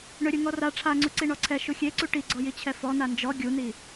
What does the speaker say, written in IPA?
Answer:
ɳ ɵ ɾʲ u ŋ ɔ r a ʈ͡ʂʰ a ŋ͡ǀ u ǀ i ɳ ɔ ǀʰ ɛ ʃ u xʲ e ǀ u ʈ i ɡ͡ǀ ɔ j i t͡ɕʰ ɛ f ɔ n̪ a n d͡ʒ ɔ ɡʲ u n̪ i

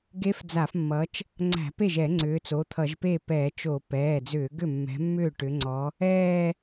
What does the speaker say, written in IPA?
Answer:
ɡ e˦˥ f d͡z a˧˩˧ f mː ʌ˨˦ t͡ʃ | ŋ͡ǀ æ̤˧˩˧ p e˥˩ ʒ ɛ˧˩˧ ŋ͡ǀ ʏː˨˦ t͡s o˩˧˩ t̪ʰ ʌ˧˩˧ ʒ p e˥˩ p ɛː˧˩˧ t͡ʃ o˧˩˧ p ɛː˩˧˩ d͡z ʏː˧˩˧ ɡ ʏ˥˩ mː ɛ̤˨˦ mː ʏː˥˩ ʈ ʏ˨˦ ŋ͡ǀ ɔ˨˦ | ɛː˥˧

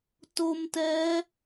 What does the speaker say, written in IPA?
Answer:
t o˧ m t ɛː˦˥

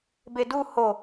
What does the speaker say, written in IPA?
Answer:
b e d u h o

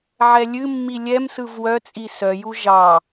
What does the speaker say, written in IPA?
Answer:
ʕ ɛ lʲ ɨ mː i lʲ ɛ m s ɯ v w œ t͡sʼ i s œ j u ʒ ɑ

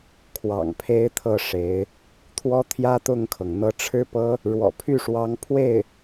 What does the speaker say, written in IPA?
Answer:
kʰ w ɑ̰˨˩ ŋ pʰ e˥ ɪ̯ t̪ʰ ɤ˥˩ ʂ e˧˥ ɪ̯ | t̪ʰ w ɔ˥ t̪ʰ j ä˥ t̪ ʊ˥˩ ŋ kʰ ɤ˩ ŋ n̪ ɤ˧˥ ʈ͡ʂʰ ɻ̩˥ p ɤ˥ | ɻ w ɔ̰˨˩ pʰ y˥˩ ʂ w ɑ˧˥ ŋ pʰ w e˥˩ ɪ̯

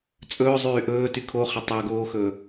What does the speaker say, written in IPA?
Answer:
t͡sʼ ɵː zˤ yː ʔ ɵː t y kʰ o χ ə tˤ əː ɡ oː x ɵ

